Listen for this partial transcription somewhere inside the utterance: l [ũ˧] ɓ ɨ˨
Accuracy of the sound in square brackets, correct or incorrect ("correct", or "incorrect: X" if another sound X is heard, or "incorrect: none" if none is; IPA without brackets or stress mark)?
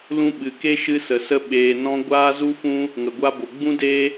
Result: correct